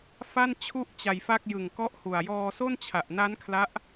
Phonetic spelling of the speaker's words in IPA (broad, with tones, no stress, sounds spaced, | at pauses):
f a˥˩ n t͡ɕʰ u˥˩ ʔ t͡ɕ a˧ j f a˥˩ k̚ j ɯ˨˩ ŋ k ɔ˦˥ ʔ h u˨˩ a̯ j ɔː˧ s o˥˩ n t͡ɕʰ a˨˩ ʔ n a˦˥ n kʰ l a˦˥ ʔ